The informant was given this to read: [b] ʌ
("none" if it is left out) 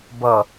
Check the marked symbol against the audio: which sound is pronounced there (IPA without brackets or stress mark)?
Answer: b